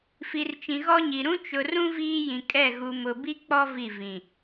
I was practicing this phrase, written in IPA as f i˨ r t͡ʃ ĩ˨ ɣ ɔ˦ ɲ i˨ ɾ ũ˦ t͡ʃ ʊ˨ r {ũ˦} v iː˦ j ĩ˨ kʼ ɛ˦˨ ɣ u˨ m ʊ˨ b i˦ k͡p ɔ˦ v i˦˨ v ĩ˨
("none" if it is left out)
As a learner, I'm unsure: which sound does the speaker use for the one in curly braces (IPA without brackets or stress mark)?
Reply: ũ˦